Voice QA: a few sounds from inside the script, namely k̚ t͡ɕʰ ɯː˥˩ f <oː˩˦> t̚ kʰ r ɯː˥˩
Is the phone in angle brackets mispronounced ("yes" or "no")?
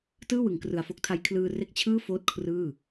yes